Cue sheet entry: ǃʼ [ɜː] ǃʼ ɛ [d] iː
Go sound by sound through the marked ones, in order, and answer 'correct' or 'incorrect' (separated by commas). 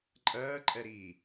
correct, incorrect